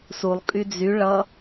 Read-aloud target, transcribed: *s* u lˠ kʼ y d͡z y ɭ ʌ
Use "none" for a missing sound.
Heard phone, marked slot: s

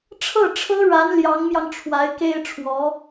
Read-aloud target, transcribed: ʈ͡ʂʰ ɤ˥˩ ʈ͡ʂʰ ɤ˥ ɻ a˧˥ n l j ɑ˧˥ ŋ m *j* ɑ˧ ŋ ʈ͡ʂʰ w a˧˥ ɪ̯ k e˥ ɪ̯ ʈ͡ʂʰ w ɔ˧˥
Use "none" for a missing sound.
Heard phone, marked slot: j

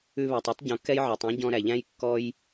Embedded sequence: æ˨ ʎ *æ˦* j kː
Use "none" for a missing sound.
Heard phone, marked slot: æ̃˦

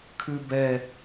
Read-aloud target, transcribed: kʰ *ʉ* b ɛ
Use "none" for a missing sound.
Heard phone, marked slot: ʉ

